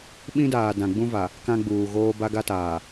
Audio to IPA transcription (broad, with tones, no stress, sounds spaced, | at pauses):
ɓ ĩ˦ d aː˨ d ã˨ ɡ͡b ũ˦ v a˨ | k ã˦ ɡ͡b uː˨ ɣ oː˦ b a˦ ɡ a˦ t aː˨